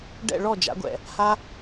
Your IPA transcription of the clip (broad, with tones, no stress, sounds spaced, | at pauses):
ɖ ɛ̰˥˧ ɭ ɔ˥˧ d͡ʒ a̰˨˥ ɡʷ ɛ̰˨ | h a˥